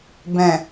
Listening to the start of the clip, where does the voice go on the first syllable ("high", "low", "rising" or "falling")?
low